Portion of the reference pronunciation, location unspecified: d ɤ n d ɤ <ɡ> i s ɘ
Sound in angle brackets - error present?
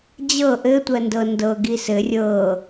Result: no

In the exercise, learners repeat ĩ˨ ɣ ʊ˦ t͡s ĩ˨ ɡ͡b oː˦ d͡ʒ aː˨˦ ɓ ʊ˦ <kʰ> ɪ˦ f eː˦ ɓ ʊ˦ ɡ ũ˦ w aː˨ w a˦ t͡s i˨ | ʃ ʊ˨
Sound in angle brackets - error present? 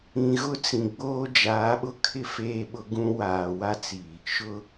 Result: no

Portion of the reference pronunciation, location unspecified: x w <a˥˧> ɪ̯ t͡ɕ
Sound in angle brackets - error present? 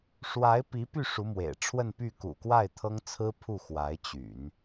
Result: yes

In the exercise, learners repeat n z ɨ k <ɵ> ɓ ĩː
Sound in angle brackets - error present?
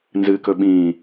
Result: no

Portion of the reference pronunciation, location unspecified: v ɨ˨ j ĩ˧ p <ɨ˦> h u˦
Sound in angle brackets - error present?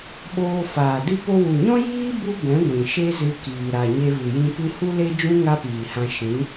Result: no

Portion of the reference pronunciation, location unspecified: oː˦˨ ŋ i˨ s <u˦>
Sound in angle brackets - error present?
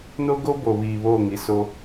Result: yes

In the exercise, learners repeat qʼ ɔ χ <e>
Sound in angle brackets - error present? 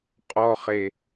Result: no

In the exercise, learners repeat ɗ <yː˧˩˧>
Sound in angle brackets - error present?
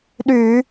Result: no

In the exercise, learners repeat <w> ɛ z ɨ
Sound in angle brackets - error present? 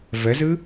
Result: yes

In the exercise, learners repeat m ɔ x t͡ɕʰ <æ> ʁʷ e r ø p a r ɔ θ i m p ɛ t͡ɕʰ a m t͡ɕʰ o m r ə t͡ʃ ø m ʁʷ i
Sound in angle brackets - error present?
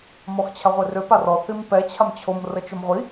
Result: yes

